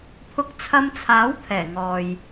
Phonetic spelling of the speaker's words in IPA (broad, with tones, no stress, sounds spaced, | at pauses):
pʰ ʊ˧ k̚ t͡sʰ ɐ˧ m t͡sʰ aː˨˥ w t̪ʰ ɛː˨˩ ŋ ɔː˨ j